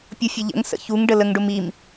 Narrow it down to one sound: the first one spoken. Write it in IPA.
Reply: pʲ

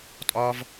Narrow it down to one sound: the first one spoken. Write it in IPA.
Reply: tʼ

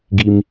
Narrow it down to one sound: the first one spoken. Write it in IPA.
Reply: ɡ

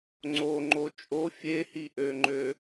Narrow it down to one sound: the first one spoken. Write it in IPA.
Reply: ŋ͡ǀ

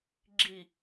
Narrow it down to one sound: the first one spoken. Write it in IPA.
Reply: ɡ͡ǁ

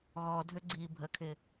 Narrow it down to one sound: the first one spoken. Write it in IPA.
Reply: ɣ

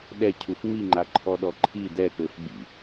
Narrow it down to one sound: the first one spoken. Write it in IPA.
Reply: ɗ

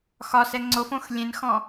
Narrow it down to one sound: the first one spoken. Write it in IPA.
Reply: x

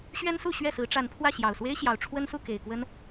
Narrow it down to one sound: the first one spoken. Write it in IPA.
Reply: ɕ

